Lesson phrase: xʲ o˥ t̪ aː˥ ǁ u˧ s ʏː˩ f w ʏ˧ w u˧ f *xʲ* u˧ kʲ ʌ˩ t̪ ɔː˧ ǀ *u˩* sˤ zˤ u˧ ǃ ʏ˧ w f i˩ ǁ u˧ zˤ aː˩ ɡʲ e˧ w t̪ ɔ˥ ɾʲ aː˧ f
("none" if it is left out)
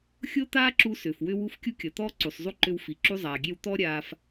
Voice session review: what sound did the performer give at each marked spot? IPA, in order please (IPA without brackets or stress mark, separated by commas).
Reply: kʲ, u˩